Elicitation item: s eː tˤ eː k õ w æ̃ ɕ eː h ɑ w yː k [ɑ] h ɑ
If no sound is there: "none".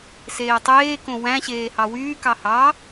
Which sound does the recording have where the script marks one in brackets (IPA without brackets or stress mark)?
ɑ